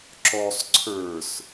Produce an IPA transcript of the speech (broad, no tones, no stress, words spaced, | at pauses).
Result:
ǁɔsˤ ǀʰə˞s